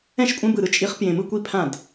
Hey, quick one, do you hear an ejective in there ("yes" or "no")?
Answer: yes